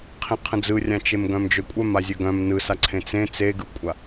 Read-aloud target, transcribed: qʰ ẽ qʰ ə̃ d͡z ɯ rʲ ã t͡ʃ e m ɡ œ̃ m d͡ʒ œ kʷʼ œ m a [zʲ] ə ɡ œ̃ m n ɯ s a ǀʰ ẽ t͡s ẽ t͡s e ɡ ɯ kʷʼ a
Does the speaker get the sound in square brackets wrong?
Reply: no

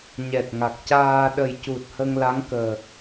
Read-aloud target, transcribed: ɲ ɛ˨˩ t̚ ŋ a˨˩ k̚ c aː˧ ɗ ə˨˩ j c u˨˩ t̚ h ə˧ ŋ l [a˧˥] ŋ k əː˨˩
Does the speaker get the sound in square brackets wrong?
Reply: no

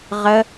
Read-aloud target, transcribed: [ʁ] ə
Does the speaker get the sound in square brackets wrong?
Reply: no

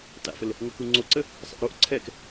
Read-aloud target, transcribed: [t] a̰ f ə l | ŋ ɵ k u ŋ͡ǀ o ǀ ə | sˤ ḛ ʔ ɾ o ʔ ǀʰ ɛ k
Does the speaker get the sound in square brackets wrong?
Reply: no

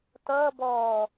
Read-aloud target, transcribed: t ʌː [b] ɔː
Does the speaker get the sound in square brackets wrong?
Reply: no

